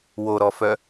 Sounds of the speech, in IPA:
woɾɔfœ

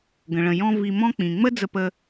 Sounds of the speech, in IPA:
ɡə̃˩ɭə̃˩ jɔ̃˧ vi˧mɔ̃˥k͡pĩ˩ ŋ͡mə˥ d͡zə˧pə˧

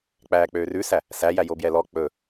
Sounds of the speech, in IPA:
k͡pæːk͡pøːrʉsæ | sæjæjo bjɛlɔ k͡pɵ

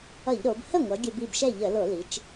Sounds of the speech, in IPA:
ʌ˧˩˧ʎɾo˩˧b hə˥˩ŋʷʌ˩˧ ɡʲə˧˩˧bi˥˩bʃɛ˥˩ʎə˧˩˧ lo˧˩˧li˩˧t͡ʃ

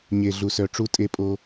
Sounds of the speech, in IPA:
ɲe˨ɮu˨sœ˨ ʈ͡ʂu˦tʼe˦pʼo˦

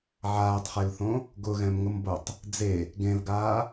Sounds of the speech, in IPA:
ʕaːtˤχelθõ | ɡʊɣɛ̃mŋʊmbotˤ | d͡ze | ɡẽlɡaː

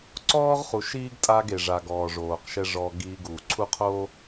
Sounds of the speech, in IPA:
ǀɔː˦ʁχu˨ʃiː˦ɡ tʼa˦ɡe˨ʐa˨ ɡɔː˨ʐoː˨qʃɛ˦ ʐɔ˦ɡiː˦ɡu˨ ǀʰu˦qʰo˦

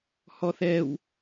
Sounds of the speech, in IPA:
hɔθɛw

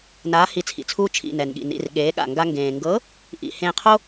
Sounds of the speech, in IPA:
naː˨˥hi˧˩t͡sʰḭ˩t͡sʰuː˦ t͡ʃʰḭ˩˧˩nɛ˩nɠḭ˩nḭ˩˧˩r ɠeː˨˥ɠa̰˧˩ŋɡa˦ ŋɡẽː˩ŋɡɤ˨˥ | ʔḭ˧˩ hẽː˧˩qʰo˦

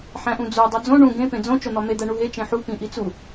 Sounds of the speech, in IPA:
ħæ̃ʔũd͡zo dˤod͡zõ ɳũ ɡẽ pẽd͡zõ t͡ʃon̪ɒme d̪æɳuɦe t͡ʃẽħu pĩʔit͡su

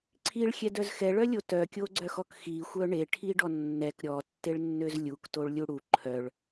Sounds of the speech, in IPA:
ǀʰiɭxʲɛdœz xɛɭœlʲo tœkʲoɡ͡ǀœxɔk xixʷœ ɳeʈʰiɖɔ nːɛk ɾʲɔtːeɭnːøz lʲuktoɭlʲu ɽu ǃʰœɭ

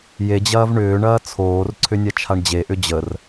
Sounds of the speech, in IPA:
jed͡ʑɐːv ɳʏːɳɐː t͡sʰoːrǀʰʏ nʲat͡ʃʰaɳd͡ʑeʔʏ d͡ʑər

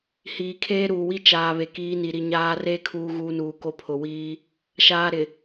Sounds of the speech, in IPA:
hiː˨kʰeː˦ɾuː˨wi˦ t͡ʃaː˨ βe˨kiː˨˦ ni˨ɾi˨ ɲaː˦ re˦ kʰuː˦ɣuː˦nuː˨ko˦ pʰʊ˨wiː˦ | ʃaː˦ɾɪ˨

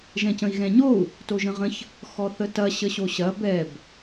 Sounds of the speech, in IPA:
ʒɛ̃cə̃i̯ɣɛ̃ɲou̯ | toʒə̃ʁə̃ç | xɔθətɐ ɕəɕoɕɐ bɛb

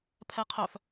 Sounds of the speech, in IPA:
pʰɛqʰœf

